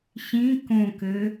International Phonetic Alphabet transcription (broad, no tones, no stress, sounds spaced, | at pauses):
ɕ ĩ k õ k ɘ